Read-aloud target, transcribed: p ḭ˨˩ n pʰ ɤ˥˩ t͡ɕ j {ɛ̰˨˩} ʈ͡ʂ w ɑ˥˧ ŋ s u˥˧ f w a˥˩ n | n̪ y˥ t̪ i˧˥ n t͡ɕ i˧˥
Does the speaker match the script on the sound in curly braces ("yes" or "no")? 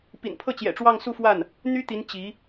yes